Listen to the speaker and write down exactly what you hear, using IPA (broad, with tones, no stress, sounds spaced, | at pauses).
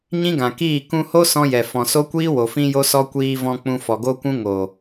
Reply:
ɲ ĩ˦ ɡ ã˨ k iː˦˨ k ũ˧ h o˦ s ɔ̃˦ j ɛ˨ f ɔ̃˨ s o˦ kʷ iː˦ w o˨ f ĩ˦ j o˦ s ɔ˦ kʷ iː˧ v ɔ̃˧ k͡p ũ˧ f ɔ˨ ɡ o˦ kʷ ũ˦ ŋ o˨